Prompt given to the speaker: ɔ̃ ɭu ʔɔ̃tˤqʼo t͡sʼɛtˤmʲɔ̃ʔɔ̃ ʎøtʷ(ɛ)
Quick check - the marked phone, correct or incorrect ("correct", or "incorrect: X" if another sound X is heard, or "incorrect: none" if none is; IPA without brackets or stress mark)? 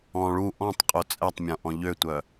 incorrect: œ